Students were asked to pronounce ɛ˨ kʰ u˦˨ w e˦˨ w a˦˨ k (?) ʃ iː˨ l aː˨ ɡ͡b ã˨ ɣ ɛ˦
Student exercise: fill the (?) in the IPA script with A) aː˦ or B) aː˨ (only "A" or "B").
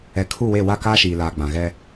A